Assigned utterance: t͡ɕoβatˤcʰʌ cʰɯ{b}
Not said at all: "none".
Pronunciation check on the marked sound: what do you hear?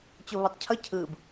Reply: b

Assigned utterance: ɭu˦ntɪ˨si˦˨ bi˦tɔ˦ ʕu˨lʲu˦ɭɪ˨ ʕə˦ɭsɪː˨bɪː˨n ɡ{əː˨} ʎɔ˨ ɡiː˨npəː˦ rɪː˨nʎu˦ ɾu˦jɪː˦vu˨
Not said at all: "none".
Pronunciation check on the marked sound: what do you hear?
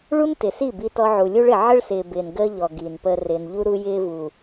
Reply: əː˦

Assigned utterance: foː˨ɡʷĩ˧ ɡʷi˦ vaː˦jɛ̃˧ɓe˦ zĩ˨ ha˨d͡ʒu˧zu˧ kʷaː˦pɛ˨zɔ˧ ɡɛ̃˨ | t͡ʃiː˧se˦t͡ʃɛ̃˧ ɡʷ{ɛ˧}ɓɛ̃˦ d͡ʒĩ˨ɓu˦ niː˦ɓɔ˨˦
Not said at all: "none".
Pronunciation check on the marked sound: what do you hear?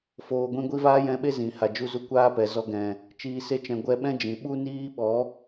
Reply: ɛ˧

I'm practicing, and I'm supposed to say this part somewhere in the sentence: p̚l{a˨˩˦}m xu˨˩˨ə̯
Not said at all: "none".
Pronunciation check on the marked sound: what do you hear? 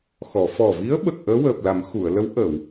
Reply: a˨˩˦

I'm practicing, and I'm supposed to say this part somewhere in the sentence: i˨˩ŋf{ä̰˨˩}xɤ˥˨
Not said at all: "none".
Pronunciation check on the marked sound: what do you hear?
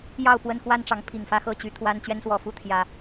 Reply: ä˥˨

